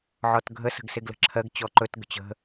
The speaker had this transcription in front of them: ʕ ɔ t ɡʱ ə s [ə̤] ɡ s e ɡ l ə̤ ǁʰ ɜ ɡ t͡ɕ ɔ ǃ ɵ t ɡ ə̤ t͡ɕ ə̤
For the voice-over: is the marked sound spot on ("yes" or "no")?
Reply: yes